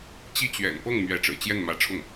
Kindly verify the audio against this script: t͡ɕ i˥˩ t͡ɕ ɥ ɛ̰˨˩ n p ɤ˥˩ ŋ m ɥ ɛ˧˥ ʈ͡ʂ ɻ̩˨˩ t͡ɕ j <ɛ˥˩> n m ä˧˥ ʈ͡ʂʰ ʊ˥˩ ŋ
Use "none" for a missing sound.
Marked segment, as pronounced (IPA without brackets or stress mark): ɛ˥˩